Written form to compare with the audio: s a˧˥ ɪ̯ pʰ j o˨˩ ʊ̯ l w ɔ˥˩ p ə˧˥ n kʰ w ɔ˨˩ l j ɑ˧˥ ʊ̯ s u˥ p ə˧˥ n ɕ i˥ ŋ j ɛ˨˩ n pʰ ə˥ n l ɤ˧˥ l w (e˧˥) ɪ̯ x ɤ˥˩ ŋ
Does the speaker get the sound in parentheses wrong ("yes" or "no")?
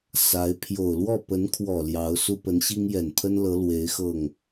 no